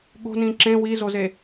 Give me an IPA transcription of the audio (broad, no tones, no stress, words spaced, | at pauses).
ɠo̤ nĩǁẽ wizoze